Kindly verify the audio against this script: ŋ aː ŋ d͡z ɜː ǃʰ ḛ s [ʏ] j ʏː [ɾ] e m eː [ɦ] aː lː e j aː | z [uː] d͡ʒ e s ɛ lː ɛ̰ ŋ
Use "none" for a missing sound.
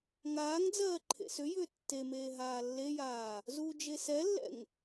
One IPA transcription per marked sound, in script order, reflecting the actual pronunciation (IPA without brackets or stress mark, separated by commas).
ʏ, tː, ɦ, uː